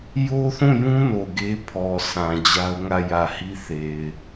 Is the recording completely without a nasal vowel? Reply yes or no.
no